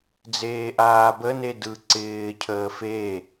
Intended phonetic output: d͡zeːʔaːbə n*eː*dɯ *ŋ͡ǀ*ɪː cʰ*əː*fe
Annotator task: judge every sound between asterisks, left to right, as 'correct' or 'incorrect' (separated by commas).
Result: incorrect, incorrect, correct